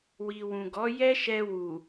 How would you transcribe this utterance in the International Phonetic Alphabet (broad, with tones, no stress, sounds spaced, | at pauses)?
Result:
w i˨ w ũ˨ ɡ ɔ˨˦ j ɛ˦ ʃ ɛ˧ w u˨